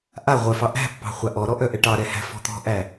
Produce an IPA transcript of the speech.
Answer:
ʔ a ʁʷ œ f ɑ ʔ æ̤ pː ɑ̤ χʷ a ʔ ɔ ɾ ɔ ʔ œ ʔ ɛ ʈ ɑ ɾ ɛ h æ̤ f ɔ̤ t̪ ɔ̤ ʔ æ

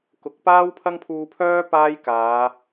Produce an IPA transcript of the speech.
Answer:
k ʊ˨˥ k̚ p aː˥ w pʰ ɐ˥ ŋ pʰ uː˧ pʰ œː˥ p aː˥ j k aː˨˧

